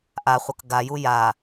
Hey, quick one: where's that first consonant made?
throat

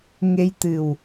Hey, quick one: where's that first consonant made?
velum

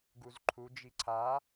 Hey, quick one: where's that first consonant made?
velum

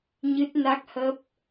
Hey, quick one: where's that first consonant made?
palate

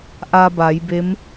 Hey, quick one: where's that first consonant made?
throat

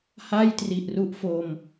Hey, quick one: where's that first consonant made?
throat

